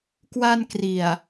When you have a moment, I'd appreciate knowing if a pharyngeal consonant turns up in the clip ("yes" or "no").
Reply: no